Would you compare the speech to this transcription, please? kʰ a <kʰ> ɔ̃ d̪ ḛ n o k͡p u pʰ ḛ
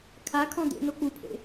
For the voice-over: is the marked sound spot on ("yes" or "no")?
yes